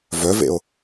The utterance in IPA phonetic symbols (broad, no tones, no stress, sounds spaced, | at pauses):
v œ v ḛ o̯